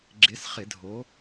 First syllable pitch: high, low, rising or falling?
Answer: rising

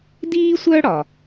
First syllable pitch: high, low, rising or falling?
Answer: high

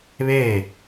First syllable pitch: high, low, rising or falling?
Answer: falling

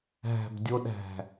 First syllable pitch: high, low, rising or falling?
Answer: low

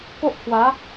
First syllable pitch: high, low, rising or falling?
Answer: high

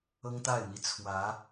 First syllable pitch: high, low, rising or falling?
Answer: high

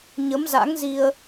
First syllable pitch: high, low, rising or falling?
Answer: rising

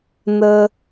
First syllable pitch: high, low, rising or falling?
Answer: low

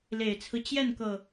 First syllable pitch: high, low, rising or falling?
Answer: low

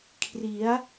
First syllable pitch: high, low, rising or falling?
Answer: rising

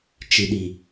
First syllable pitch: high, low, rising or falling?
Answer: low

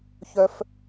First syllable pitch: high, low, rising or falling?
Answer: high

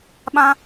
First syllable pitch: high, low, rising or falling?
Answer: high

